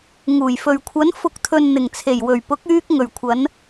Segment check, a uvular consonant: absent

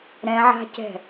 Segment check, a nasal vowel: present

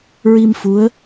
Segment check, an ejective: absent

